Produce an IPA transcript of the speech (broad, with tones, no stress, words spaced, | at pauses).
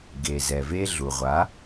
ɡe˨zɛ˨ve˧ ɮu˨ʁʷa˨˦